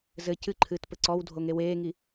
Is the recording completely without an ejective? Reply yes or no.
yes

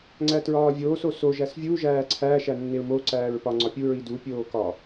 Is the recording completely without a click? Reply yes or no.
no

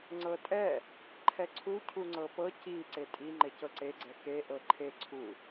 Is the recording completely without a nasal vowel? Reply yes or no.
yes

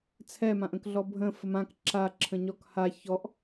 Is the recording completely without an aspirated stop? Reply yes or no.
no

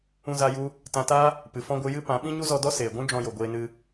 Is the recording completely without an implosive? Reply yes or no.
no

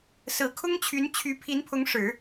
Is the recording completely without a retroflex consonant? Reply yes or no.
no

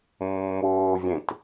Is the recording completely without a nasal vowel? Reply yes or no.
no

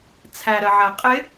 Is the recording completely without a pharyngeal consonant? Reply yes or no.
no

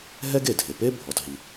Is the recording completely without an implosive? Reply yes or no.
yes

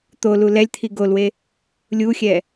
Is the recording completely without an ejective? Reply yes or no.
yes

